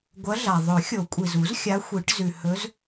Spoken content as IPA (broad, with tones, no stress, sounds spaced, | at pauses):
ɡʷ ɐ˧˥ ɮ a˩ ðˤ ɵ˨˩˦ xʲ o˨˩˦ kʷʼ i˩ z u˨˩˦ z xʲ a˧˥ xʷ i˨˩˦ ʈ z ʉ˩ h ɵ˧˥ z